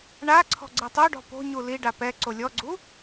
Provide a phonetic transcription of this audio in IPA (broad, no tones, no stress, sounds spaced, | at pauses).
ɳ a ǀʰ ɔ̤ ɡ͡ǀ i tˤ o ɖ ɔ̤ p o̤ ɲ u l i ɖ a p ɛ ǀ o lʲ ɔ ɡ͡ǀ u